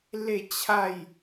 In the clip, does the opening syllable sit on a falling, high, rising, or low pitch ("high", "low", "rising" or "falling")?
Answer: falling